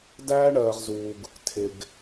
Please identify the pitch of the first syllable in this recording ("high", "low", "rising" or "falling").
high